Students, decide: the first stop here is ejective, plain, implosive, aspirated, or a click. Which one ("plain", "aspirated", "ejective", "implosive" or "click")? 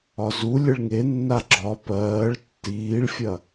click